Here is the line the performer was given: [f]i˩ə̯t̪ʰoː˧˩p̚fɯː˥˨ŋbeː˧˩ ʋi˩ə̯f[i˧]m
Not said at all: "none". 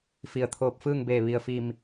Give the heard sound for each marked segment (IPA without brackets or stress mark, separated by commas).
f, i˧˩